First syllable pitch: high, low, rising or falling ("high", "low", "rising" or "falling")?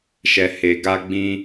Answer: low